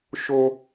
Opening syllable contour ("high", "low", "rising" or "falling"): high